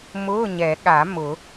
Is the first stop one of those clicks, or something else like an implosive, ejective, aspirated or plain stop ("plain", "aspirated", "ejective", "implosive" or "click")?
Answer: implosive